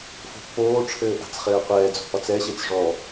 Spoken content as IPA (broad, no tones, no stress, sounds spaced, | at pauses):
f o̤ pː oː ʈ͡ʂʰ ɘː ʔ a̤ t͡s χ ɘː qʷ ɛː d͡z o̤ p ɒ t͡s ɛ ɕ e t͡s ʐ ɔ